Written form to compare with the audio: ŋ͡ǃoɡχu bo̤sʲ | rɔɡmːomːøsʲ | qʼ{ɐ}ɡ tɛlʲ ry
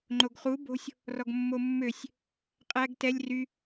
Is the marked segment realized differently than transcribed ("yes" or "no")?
yes